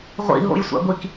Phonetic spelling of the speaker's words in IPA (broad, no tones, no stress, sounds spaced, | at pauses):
ʁʷ ḭ ɦ o̰ j sʷ a̰ ɡʷ i k